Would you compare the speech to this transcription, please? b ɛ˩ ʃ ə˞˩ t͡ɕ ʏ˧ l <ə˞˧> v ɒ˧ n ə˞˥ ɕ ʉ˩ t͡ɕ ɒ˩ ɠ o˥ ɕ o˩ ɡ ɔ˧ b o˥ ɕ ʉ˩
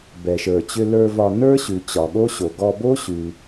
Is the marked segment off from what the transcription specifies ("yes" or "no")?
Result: no